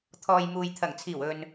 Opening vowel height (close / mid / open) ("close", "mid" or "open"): mid